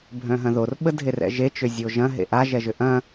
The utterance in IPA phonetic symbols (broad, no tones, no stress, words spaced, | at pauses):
bʱœ̃ɦɐ̃ðor ɓədʱerɛ̰ʒe t͡ʃʏzʲoʒɐ̃ ɦḛʔa ʒɛʒʏʔɐ̃